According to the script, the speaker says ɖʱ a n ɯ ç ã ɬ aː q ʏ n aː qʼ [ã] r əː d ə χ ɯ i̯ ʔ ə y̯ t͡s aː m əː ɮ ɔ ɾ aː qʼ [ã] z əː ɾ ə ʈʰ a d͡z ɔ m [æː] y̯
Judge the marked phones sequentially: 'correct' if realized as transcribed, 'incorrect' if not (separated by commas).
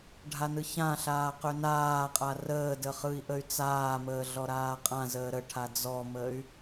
incorrect, correct, incorrect